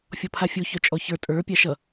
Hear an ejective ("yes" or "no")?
yes